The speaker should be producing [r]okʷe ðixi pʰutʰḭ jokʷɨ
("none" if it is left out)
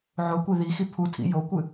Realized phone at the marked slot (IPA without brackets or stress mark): ʕ